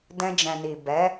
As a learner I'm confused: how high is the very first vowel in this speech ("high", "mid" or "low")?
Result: mid